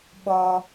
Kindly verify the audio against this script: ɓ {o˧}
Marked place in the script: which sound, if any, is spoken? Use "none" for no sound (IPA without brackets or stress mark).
ɔ˧